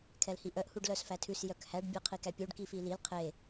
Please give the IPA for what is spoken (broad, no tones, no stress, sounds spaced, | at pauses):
kʰ ɛ l h i ʔ œ ʔ h u ɖ l œ s f æ tʰ ʉ s j œ k h æ ɖ bʲ ɛ qʰ i k æ pʲ u ɖ k i f i l i l qʰ e